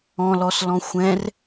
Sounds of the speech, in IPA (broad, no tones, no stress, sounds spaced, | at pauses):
ɔ̃ l ɔ s l ɔ̃ xʷ ɛ̃ r